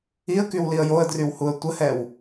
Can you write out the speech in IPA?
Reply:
iə̯kywliə̯ joə̯drywhuə̯ tʷəhɛw

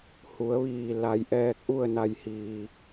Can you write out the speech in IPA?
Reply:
hu˩˧ə̯ʋiː˧˩ la˧j ʔɛː˧k̚ʔu˥˨ə̯na˧˩jhiː˩

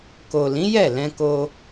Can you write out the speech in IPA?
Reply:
ko˨lĩ˨˦ jɛ˦˨lɛ̃˧ko˧

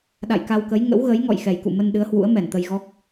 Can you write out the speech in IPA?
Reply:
ɗa̰˧˨jka˧wkə˨˦j ŋə̰˧˥wɣə˨˦j ŋɔ̰˧˨jxɛ˨˩jkṵ˧˨mə˧n ɗɨ˨˦ə̯hwṵ˧˥ə̯ mɛ˧˩nt̪ə˧jɣɔ˦˥k̚

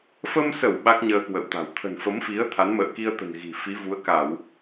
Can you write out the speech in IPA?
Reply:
fə˧msə˧˩w ɓa˦˥k̚ɲəː˧kwə̰˧˨wt̪a̤˨˩w t̪ʰə̤˨˩nfə˨˦mfi˨˦ə̯ t̪ʰa˨˦nmə̰ː˧˨ki˧ə̯t̪ə̤˨˩n ɣi̤˨˩ fi˨˦vu˨˦ə̯ka˧˩˨w

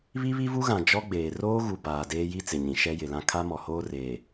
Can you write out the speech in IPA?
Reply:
βi˦βi˦vu˦ɣã˨ d͡ʒɔ˦ɡ͡beː˨ roː˦ɣu˨ baː˨ deː˦ji˦t͡sɪ˨ɲĩ˨ ʃɛ˦jɪ˨lã˦ kʰa˦mɔ˨hoː˦reː˨

